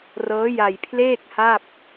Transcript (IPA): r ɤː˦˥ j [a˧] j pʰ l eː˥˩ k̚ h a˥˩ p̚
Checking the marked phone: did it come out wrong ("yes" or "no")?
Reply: no